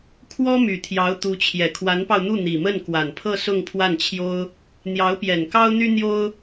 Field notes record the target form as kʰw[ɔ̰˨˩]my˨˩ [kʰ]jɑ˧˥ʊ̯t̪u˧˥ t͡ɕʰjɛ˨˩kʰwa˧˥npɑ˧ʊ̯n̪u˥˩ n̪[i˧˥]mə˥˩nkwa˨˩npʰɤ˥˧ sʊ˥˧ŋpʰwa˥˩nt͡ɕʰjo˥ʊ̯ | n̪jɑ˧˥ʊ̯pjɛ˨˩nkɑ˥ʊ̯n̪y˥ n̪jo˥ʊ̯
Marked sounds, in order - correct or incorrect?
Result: incorrect: ɔ˥, incorrect: t̪ʰ, incorrect: i˨˩

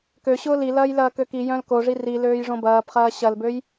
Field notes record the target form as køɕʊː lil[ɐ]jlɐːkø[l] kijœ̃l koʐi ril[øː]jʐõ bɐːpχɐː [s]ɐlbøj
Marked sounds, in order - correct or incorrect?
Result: incorrect: ɐː, incorrect: none, correct, incorrect: ɕ

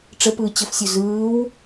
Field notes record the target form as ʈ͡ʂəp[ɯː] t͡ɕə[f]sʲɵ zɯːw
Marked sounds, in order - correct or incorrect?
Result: correct, correct

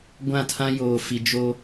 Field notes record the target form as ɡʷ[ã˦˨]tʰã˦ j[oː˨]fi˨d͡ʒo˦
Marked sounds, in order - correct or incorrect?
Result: correct, correct

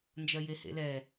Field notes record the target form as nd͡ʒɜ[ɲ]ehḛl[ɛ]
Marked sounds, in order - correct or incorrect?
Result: incorrect: j, correct

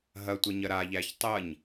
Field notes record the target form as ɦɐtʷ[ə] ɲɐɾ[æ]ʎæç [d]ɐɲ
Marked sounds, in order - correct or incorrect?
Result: correct, incorrect: a, incorrect: tˤ

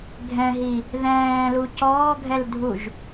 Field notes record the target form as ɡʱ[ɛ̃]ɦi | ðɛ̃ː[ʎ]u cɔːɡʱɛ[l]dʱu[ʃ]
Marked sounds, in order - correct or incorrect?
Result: correct, incorrect: l, correct, incorrect: ʒ

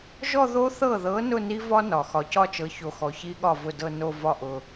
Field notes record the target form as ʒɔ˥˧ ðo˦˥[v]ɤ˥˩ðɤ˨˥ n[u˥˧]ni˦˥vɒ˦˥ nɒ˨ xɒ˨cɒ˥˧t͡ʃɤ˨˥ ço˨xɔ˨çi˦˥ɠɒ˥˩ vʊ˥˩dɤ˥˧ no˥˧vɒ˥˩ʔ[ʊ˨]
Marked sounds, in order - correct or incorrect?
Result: incorrect: θ, incorrect: ʊ˥˧, correct

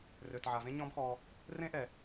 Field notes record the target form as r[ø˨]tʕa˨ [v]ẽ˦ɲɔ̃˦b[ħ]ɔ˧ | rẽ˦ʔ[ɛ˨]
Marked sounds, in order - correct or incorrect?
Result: correct, correct, incorrect: x, correct

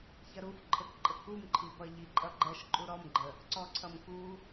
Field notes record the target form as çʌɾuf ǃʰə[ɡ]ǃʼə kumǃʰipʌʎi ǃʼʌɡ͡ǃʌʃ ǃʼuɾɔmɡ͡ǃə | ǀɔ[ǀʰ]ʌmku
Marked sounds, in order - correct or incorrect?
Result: incorrect: k, correct

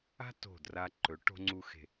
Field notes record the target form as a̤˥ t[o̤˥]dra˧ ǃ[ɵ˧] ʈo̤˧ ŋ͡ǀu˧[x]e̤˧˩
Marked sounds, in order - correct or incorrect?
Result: incorrect: o̤˧˩, incorrect: ɵ˩˧, correct

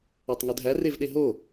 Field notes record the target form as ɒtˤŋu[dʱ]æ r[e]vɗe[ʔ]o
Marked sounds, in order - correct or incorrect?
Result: correct, correct, incorrect: ɦ

